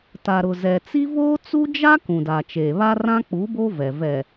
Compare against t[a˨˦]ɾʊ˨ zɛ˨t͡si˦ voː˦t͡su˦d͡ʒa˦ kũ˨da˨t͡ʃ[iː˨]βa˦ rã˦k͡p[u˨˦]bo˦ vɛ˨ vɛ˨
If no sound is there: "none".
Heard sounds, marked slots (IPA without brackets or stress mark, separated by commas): a˨, eː˨, u˨˦